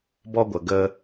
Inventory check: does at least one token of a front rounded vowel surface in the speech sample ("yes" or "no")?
no